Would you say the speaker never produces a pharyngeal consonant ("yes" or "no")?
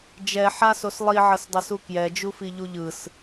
no